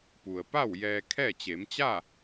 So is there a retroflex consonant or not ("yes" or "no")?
no